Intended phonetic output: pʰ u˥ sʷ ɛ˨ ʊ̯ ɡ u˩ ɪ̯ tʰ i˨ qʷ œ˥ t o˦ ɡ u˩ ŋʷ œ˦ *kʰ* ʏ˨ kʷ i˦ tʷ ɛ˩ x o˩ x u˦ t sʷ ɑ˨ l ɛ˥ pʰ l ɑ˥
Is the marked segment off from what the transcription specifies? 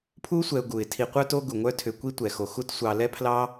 yes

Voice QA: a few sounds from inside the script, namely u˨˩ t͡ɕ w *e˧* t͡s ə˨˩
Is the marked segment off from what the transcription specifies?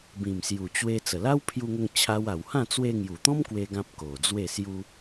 no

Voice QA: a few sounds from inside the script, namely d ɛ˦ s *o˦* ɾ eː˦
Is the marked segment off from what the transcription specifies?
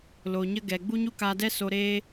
yes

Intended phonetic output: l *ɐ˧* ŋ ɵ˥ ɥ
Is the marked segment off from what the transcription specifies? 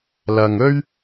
no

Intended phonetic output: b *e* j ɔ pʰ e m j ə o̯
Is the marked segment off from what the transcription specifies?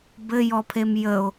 yes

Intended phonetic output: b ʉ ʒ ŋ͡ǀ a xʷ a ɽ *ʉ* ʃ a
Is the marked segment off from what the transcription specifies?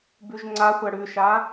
no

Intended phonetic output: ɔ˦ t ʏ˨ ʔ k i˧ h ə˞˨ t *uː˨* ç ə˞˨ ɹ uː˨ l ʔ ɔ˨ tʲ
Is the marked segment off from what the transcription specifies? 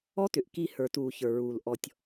no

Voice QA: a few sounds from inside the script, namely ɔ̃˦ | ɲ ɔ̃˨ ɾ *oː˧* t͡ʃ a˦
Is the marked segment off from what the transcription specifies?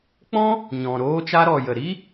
yes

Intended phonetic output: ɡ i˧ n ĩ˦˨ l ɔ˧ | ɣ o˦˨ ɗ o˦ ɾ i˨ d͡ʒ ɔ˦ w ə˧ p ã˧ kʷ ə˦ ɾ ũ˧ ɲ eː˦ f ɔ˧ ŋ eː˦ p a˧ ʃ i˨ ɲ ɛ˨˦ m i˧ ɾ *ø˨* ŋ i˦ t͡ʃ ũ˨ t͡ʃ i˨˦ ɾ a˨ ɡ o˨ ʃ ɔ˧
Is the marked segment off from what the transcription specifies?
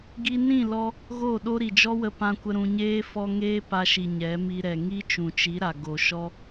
yes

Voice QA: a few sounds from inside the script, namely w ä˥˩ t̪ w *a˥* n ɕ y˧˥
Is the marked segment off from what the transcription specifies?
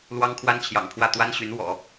no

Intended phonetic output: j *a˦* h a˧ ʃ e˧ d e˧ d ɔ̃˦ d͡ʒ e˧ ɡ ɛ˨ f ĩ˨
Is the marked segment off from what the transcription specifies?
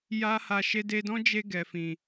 no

